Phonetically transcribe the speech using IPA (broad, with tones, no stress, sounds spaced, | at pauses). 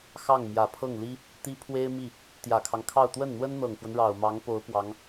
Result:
x ɑ˥˩ ŋ m j ä˨˩ pʰ ɤ˥˩ ŋ l i˥ | t̪ i˥ pʰ w e˥ ɪ̯ m i˥˩ | t̪ j ä˨˩ kʰ ɑ˦ ŋ kʰ ɑ˥˧ ʊ̯ t̪ w ə˥˩ n n̪ w ə˥ n n̪ ɤ˨˩ ŋ f w ə˦ n ɻ ɑ˨˩ ʊ̯ m ɑ˧˥ ŋ p o˧˥ ʊ̯ p w ɑ˧˥ ŋ